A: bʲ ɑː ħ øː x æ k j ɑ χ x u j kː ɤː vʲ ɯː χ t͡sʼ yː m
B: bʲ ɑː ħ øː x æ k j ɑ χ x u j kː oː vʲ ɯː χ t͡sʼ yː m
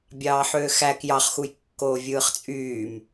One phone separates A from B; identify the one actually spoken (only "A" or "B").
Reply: B